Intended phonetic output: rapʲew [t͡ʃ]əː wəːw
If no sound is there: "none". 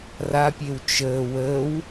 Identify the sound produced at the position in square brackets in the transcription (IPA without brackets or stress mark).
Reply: t͡ʃ